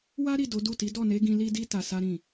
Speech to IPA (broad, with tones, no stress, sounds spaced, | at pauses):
w a˦ ɾ i˦˨ d o˨˦ d u˦˨ t i˨˦ d ɔ˦˨ n e˨˦ ɡ ĩ˧ l i˦ d i˦ t a˧ s a˦ ɾ ĩ˦˨